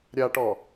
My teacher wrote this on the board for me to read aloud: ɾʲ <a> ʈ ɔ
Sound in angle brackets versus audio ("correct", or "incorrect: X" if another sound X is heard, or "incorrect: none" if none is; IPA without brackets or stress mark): correct